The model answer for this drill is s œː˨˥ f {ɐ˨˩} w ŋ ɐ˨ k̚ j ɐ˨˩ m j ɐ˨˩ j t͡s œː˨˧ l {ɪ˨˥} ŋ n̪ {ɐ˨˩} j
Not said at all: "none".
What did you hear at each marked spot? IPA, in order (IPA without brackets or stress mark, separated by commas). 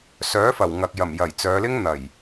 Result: ɐ˨˩, ɪ˥, ɐ˨˩